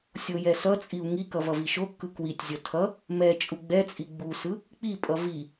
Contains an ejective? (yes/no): yes